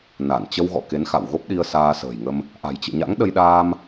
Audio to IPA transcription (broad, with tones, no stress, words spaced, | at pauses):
na˧˩n t͡ɕə˧wɣɔ̰˧˨ ke˨˦nxa̰˧˨wɣo˦˥p̚ɗi˧ə̯ saː˧sə̤ː˨˩jŋə˧m | ʔa̤˨˩jt͡ɕɨ̰˧˨ɲa̰˧˥ŋ ɗə˧jɗaː˧m